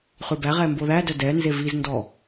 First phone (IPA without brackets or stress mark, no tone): χ